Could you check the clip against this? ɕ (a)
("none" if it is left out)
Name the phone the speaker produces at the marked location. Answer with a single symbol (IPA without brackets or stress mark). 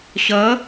ʌ